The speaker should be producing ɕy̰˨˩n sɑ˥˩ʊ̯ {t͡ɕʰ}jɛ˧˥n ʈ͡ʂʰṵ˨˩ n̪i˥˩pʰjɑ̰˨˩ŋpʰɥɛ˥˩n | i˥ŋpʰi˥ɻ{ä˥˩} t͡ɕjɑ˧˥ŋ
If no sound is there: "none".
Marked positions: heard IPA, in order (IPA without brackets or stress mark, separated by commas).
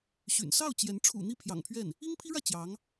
t͡ɕ, ä˥˩